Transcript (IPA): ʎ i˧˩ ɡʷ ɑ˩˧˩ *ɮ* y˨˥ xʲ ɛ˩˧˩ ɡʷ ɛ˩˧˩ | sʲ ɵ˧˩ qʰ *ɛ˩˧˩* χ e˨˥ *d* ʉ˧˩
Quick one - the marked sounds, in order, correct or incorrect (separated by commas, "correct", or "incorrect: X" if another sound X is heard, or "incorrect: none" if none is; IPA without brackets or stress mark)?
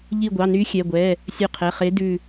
incorrect: n, correct, correct